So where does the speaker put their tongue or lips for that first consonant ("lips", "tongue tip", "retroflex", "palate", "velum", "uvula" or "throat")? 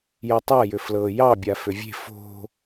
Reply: palate